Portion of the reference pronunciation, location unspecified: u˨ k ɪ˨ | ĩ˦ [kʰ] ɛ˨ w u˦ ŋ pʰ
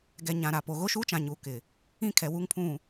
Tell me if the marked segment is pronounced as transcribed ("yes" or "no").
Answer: yes